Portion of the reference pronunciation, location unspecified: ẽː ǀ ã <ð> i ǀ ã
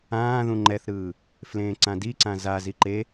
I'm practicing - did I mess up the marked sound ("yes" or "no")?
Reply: yes